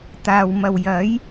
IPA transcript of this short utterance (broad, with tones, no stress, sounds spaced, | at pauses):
t̪ aː˨ w m ɐ˨ w j ɐ˨˥ j